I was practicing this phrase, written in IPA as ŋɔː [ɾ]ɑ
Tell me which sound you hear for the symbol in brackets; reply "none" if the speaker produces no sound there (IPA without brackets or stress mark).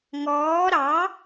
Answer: ɾ